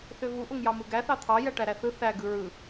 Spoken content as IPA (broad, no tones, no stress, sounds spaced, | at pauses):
θ ø v u ʔ o ŋ j ɑ m ɯ ɡ æ θ ɑ t̪ʰ ɑ j æ ʈ æ ɾ æ θ ɯ θ æ ɡ ɯ ɹ ɯ